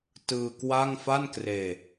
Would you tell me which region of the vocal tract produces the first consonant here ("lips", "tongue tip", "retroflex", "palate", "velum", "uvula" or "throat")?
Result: tongue tip